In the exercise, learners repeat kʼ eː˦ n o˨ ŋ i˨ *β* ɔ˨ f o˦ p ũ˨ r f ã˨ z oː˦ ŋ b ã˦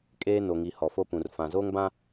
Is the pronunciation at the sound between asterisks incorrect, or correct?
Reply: incorrect